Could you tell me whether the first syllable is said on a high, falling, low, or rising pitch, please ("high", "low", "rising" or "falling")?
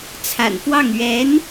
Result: low